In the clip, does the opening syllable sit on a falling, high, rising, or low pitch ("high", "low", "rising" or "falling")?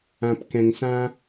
low